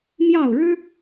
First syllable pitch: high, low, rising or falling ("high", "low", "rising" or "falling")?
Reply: falling